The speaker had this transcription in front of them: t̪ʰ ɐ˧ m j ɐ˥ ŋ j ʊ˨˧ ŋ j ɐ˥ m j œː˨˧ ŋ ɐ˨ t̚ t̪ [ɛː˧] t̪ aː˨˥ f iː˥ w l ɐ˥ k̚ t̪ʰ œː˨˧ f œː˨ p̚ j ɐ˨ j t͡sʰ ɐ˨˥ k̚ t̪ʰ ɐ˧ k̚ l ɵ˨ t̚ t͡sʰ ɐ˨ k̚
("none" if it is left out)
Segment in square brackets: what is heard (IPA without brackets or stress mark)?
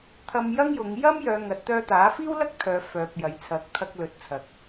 œː˧